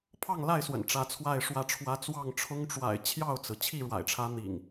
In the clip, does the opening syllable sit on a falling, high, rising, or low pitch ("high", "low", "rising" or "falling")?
falling